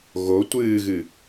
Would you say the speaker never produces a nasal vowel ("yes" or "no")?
yes